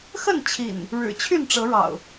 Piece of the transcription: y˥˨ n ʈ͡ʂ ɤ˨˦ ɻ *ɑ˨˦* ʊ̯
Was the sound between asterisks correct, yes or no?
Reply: no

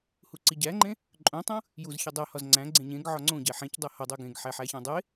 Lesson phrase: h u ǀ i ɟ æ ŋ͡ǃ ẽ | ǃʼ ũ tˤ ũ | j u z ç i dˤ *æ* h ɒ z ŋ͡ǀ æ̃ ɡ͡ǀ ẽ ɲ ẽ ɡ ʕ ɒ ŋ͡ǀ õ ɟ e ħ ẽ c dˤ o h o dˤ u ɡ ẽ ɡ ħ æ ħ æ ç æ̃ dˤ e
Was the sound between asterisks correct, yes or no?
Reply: yes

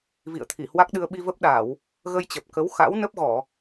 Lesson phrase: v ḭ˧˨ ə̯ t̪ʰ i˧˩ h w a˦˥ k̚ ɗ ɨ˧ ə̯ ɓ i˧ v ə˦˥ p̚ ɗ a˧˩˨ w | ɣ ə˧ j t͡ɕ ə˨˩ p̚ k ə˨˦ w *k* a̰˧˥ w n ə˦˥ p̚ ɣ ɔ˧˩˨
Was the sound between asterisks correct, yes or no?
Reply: no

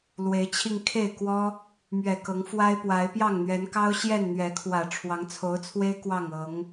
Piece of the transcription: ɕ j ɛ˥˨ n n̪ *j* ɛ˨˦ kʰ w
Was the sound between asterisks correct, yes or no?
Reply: no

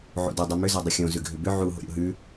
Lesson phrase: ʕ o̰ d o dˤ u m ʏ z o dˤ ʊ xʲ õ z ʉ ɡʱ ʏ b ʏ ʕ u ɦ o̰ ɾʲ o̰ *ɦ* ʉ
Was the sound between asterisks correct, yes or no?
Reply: yes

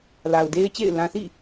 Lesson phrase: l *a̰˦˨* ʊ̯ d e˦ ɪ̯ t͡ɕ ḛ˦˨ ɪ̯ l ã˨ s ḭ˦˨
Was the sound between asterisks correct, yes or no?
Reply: no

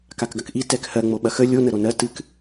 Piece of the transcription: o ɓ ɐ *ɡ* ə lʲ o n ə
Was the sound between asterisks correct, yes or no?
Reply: no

